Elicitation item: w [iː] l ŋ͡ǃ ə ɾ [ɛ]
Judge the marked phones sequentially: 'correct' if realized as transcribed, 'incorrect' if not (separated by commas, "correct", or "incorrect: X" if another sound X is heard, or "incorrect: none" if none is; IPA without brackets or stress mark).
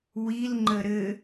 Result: incorrect: i, incorrect: ɘ